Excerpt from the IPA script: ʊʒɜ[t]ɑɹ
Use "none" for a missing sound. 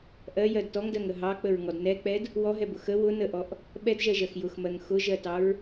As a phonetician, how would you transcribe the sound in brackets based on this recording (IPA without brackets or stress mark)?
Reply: t